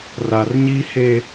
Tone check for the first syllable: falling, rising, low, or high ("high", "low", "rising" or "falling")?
low